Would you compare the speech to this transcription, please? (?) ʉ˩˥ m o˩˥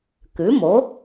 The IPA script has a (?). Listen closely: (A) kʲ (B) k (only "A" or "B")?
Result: B